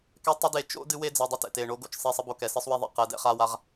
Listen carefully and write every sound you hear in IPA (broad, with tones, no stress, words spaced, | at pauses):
kɛ˥tˤɘ˥de˦˨ t͡ʃo̰˥ dɨ˥we˥d͡zɐ˧˥˧ dˤɨ˥tɛ̰˦˨t e˦˨ ɳo˥ɡo̰˥t͡ʃ sˤi˧˥˧sˤɘ˥bo˦˨kɛ˦˨ sɨ˥sˤwe˥ðˤɛ̰˧˥˧ qɛ˧˥˧dɛ̰˥χa˥wa˥ʁ